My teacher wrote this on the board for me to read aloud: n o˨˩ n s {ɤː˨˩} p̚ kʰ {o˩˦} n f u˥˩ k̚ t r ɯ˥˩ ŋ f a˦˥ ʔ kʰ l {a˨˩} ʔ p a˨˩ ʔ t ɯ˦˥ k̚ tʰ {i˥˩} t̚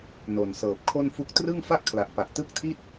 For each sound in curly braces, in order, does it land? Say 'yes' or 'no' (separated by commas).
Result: yes, no, yes, yes